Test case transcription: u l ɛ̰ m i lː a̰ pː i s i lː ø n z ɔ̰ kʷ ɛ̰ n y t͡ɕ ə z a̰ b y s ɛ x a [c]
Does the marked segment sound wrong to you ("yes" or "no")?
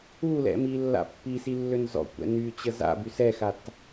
yes